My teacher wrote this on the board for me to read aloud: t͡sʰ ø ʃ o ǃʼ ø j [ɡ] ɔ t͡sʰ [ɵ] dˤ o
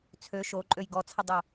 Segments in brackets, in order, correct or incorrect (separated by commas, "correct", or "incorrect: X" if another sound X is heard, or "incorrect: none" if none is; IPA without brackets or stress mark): correct, incorrect: ə